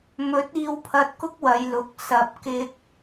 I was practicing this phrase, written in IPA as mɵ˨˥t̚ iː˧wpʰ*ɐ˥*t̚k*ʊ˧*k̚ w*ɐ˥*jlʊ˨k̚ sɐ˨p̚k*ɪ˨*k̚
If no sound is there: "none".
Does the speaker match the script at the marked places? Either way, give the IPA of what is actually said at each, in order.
ɐ˧, ʊ˥, ɐ˨˧, ɪ˧

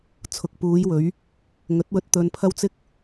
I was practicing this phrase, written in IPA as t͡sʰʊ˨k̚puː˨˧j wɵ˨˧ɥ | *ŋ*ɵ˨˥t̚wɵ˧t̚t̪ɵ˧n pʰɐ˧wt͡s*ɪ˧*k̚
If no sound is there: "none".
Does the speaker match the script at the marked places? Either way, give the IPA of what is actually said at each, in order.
ŋ, ɪ˧

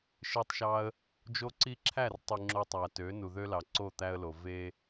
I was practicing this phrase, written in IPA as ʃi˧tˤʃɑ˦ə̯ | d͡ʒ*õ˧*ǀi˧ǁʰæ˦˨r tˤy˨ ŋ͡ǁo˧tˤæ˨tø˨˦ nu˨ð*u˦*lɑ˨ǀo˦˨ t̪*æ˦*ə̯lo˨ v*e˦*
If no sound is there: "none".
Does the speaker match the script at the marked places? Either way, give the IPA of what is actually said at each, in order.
o˧, ø˦, æ˦, e˦

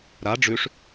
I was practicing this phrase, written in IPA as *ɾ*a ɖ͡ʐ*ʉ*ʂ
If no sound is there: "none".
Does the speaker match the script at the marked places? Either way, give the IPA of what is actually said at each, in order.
ɾ, ʉ

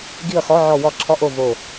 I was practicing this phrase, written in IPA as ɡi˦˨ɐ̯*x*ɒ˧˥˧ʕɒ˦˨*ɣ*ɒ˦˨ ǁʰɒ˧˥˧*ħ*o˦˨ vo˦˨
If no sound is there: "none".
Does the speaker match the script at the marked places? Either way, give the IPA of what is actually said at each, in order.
x, w, ʔ

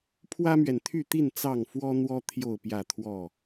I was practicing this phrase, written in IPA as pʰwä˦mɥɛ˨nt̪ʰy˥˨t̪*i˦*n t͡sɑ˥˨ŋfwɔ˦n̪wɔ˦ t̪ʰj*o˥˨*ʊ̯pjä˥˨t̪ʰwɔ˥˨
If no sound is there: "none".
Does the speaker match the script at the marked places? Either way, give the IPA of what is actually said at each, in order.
i˥˨, o˥˨

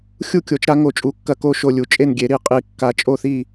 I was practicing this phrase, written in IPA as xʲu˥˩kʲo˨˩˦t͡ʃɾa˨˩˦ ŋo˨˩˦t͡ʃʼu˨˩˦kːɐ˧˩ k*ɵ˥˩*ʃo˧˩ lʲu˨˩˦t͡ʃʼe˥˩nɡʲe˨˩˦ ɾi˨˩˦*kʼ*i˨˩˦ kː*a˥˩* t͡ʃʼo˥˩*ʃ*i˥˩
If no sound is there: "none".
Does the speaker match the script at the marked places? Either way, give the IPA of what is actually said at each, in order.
o˥˩, qʼ, a˨˩˦, θ

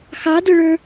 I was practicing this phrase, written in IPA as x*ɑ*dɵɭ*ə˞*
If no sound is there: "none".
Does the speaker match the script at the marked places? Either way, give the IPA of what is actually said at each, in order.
ɑ, ə˞

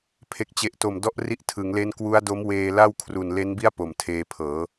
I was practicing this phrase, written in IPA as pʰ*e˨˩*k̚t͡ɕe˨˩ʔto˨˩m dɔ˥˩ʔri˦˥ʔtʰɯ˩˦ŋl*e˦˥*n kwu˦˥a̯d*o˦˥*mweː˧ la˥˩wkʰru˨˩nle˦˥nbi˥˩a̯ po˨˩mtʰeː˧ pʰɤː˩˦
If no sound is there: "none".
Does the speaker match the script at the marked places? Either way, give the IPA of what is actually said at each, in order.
e˨˩, e˦˥, o˦˥

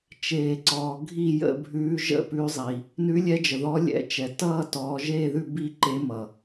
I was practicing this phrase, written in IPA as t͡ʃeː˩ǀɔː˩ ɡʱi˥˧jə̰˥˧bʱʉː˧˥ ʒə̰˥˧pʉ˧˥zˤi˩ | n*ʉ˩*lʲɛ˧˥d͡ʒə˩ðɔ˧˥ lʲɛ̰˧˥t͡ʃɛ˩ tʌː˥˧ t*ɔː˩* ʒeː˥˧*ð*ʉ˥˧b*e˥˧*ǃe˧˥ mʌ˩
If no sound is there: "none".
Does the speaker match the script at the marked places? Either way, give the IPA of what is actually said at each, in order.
ʉ˧˥, ɔː˧˥, ð, i˥˧

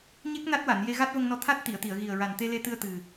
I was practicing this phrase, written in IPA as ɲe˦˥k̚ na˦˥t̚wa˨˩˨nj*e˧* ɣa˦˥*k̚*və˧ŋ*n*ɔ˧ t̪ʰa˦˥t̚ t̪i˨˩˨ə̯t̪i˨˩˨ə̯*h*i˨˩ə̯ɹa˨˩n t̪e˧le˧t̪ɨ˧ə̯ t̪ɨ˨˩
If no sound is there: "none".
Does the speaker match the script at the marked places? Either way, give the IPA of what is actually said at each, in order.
e˧, t̚, n, ɣ

